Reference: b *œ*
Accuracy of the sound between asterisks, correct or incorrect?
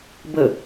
incorrect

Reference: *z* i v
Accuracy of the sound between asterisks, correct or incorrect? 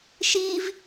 incorrect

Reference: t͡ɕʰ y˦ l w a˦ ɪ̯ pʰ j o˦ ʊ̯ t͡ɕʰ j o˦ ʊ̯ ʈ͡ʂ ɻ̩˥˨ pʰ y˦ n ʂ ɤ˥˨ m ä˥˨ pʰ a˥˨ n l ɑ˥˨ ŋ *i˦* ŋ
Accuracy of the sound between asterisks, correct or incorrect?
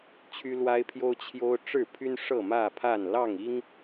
correct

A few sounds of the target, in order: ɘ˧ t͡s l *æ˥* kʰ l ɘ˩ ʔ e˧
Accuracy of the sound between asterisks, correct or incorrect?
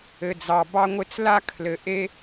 incorrect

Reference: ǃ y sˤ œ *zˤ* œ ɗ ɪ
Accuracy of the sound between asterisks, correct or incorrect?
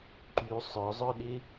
correct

